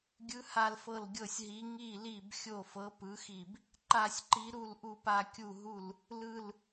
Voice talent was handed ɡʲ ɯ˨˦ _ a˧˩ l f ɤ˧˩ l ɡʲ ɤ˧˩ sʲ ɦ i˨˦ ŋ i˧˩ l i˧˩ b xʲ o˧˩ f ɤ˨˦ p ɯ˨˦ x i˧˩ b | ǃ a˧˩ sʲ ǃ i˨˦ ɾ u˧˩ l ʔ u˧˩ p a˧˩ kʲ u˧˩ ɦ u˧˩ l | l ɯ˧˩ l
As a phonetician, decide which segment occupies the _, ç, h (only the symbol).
h